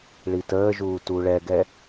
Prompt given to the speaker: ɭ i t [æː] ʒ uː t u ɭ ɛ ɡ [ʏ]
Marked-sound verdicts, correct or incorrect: incorrect: əː, incorrect: ɛ

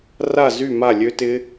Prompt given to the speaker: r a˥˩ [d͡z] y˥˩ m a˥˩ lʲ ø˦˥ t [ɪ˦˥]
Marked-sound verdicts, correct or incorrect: incorrect: z, correct

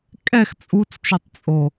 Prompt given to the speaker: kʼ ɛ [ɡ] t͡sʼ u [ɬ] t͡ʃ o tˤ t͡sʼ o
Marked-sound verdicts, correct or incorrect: incorrect: x, incorrect: t͡s

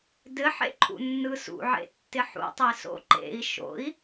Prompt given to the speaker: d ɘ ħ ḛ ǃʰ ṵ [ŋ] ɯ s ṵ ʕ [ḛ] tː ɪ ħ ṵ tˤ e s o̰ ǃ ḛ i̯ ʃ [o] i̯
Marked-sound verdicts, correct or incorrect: incorrect: nː, correct, incorrect: o̰

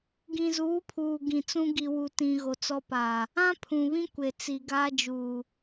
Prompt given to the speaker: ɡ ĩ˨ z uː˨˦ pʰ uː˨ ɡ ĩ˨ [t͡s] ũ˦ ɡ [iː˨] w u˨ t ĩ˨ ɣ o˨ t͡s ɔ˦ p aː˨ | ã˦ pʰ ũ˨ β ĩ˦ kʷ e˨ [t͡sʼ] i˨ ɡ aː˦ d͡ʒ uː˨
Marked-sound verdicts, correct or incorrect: correct, incorrect: i˨, incorrect: t͡s

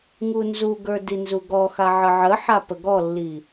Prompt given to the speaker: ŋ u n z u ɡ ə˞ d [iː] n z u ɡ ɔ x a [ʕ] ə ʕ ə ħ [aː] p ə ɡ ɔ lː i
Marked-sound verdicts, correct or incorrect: incorrect: i, correct, incorrect: a

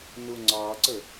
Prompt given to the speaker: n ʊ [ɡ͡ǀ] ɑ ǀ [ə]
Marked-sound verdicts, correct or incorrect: incorrect: ŋ͡ǀ, correct

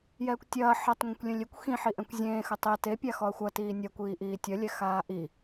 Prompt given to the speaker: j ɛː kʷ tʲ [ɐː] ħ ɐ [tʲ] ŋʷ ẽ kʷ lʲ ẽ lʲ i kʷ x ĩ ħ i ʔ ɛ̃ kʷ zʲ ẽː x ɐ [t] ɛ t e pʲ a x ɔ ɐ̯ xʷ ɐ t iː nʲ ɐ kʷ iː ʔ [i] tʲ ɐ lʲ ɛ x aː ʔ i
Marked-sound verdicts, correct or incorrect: correct, incorrect: tˤ, incorrect: tˤ, incorrect: iː

